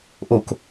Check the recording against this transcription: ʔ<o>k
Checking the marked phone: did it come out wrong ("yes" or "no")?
no